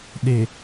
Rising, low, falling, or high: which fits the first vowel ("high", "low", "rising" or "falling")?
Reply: low